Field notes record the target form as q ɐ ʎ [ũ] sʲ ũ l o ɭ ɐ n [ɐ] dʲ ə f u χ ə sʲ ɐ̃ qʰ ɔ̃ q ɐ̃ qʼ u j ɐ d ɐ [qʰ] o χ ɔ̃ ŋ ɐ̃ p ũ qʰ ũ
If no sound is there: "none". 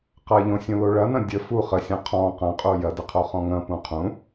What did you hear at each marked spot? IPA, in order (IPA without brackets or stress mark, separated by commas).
õ, ɐ̃, qʰ